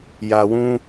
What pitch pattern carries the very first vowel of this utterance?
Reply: low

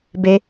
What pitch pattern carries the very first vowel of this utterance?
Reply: high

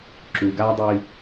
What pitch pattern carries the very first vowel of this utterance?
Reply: low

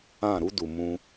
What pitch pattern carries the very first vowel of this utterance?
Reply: falling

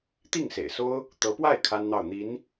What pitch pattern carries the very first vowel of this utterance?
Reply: falling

